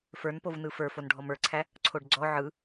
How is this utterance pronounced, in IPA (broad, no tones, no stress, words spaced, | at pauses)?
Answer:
fə˞npovnɯ fə˞ fonɖʱɔmə˞ǀʰæ | ǀʰoɖɡ͡ǀɔ ʕɯ